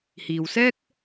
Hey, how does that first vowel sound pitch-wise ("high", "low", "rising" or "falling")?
low